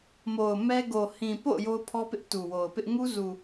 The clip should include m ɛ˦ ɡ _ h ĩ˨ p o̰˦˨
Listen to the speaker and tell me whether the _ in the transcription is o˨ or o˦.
o˨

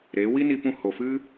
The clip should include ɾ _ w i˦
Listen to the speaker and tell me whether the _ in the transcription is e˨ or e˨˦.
e˨˦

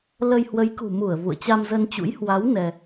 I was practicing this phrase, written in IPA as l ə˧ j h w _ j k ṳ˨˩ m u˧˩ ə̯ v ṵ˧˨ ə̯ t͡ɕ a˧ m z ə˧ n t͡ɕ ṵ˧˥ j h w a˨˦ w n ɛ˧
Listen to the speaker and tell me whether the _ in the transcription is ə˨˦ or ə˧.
ə˨˦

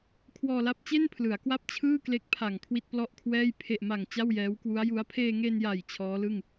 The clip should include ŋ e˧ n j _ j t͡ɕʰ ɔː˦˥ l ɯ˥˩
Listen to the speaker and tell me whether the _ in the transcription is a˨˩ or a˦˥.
a˨˩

